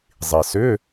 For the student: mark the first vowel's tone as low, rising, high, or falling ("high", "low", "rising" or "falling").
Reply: low